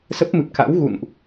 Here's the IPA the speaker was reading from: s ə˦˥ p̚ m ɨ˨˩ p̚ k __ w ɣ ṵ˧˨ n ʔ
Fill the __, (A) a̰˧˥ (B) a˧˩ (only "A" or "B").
A